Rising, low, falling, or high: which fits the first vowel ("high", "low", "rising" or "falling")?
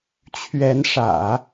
rising